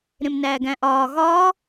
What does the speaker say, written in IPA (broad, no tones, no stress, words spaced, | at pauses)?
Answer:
ɾẽmnæːɡæ̃ʔɒː ɣɒː